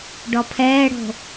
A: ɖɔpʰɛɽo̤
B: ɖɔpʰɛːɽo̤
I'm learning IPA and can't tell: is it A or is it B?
B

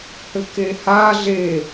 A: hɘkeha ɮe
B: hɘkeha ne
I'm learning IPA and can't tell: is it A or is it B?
A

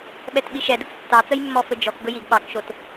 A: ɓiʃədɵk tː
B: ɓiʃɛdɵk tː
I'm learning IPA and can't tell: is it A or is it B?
B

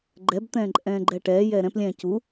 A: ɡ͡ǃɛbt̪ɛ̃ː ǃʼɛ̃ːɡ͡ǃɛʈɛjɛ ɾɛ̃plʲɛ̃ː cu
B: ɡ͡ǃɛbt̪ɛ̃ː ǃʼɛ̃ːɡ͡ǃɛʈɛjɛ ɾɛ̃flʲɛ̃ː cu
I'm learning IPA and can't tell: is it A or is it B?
A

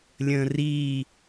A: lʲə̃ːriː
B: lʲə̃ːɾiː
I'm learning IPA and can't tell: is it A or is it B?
A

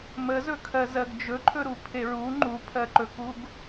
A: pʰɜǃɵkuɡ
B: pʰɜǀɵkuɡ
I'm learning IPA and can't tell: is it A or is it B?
A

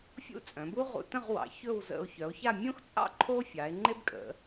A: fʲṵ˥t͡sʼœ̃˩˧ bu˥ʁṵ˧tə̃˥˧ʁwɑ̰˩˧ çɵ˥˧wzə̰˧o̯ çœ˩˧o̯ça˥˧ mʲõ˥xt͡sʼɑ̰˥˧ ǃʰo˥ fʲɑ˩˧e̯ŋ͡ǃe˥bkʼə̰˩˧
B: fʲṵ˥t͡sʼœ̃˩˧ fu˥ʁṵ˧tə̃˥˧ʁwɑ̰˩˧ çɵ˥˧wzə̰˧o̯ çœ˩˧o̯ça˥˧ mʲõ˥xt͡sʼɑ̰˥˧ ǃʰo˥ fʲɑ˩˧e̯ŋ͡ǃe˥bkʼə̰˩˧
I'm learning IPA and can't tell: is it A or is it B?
A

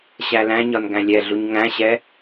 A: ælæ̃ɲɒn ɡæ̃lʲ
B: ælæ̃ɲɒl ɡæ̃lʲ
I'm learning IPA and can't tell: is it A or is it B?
A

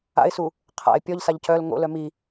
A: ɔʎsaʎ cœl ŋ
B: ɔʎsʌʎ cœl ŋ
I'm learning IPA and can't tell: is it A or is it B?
A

